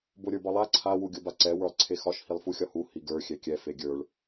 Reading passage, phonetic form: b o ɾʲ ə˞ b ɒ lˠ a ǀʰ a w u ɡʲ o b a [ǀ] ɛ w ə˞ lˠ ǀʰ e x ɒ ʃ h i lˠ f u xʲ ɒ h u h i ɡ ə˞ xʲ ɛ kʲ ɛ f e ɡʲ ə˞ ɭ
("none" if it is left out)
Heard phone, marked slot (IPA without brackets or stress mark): ǀ